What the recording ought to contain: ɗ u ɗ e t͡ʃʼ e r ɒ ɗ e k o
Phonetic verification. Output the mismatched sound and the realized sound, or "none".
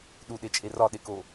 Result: none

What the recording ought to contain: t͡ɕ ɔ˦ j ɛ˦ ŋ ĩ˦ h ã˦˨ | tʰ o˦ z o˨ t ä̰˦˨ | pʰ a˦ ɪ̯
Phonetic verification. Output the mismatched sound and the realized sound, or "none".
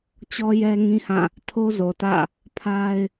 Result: none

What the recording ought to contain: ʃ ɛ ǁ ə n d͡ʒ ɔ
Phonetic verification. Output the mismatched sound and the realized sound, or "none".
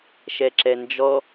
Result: ə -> ɛ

